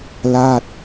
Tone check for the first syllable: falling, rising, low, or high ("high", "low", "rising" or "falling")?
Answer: falling